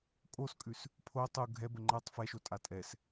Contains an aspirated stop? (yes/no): yes